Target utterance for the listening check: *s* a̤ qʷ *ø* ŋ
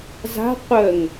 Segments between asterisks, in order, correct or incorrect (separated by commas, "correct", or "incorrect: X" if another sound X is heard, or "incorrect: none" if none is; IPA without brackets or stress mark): incorrect: z, incorrect: ə